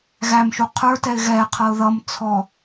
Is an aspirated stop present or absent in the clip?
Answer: present